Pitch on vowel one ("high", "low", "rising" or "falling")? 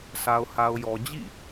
low